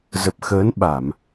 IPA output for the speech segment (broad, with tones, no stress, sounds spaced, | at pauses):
z ə˨˩ p̚ x əː˨˦ n ɓ a˧˩˨ m